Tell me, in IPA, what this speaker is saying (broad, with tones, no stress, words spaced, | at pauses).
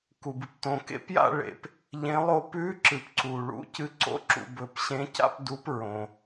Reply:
ku˨bɨ˨p tõ˨kḛ˥˧pja̰˥˧ ɭḛ˨p | ʎẽ˧˥lˠo˥˧ pʉ˧˥ǁɨ˨pǀu˨ɭṵ˧˥ cɨ˧˥ǀo̰˧˥ǁṵ˨ bɵ˨p ɕẽ˧˥ca̰˥˧p du˧˥pɹõ˨